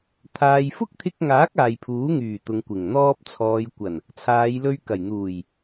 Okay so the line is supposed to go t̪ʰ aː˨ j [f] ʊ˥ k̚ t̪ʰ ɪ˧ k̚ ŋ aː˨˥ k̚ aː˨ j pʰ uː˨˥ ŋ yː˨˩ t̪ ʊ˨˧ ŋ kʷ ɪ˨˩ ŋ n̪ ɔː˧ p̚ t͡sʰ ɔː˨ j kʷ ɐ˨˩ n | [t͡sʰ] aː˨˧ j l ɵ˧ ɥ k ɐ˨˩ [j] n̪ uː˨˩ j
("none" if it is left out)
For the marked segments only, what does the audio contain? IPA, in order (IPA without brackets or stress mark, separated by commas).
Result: f, t͡sʰ, j